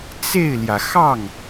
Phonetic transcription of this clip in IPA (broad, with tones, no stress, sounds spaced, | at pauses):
t͡s e˥˩ ɪ̯ l j ä˩ x ɑ˥˩ ŋ